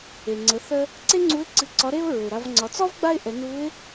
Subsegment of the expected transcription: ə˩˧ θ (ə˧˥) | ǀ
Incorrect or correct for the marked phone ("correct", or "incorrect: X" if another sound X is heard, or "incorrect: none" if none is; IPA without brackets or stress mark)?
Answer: incorrect: ə˧